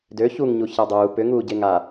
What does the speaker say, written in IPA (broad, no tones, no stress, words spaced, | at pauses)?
dø çuŋɲu çadˤuː pʏ ŋuːɟeŋa